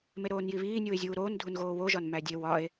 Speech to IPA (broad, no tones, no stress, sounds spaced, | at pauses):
m e ɾ oː n j i β iː nʲ uː e̯ zʲ uː ɾ oː n dʱ u n ɣ oː w o ʒ ɒ n m æ dʲ e w ɒ e̯